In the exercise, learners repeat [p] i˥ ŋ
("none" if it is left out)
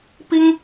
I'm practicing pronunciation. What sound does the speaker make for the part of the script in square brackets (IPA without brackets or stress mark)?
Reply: p